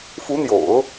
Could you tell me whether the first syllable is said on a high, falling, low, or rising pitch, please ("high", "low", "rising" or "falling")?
rising